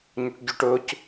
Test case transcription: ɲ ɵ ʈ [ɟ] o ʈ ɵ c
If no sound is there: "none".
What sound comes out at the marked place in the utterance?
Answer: ɟ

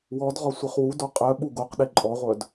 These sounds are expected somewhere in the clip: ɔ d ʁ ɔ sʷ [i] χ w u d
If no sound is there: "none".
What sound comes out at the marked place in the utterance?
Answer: e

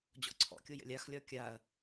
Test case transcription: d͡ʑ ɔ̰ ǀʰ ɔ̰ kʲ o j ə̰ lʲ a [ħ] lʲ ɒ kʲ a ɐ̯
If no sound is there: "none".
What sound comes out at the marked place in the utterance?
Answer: x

